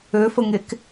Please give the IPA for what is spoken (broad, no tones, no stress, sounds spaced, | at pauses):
ø f ə ŋ e k